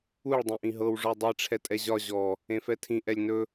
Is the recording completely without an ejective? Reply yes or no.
no